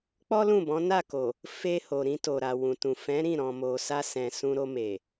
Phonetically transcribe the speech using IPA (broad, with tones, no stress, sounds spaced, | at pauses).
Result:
k͡p ɔ˦ l ũ˦˨ b ɔ̃˨˦ n a˦˨ k o˨ | f e˧ h o˨ ɾ ĩ˧ t o˨ ɾ a˨ w ũ˨ t ũ˨ f ɛ̃˨˦ ɾ ĩ˦˨ ɾ ɔ̃˨ m o˨ s a˧ s ɛ̃˨ s ũ˧ ɾ o˧ m e˨